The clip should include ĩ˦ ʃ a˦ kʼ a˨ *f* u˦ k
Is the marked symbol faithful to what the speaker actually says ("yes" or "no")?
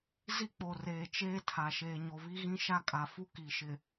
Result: yes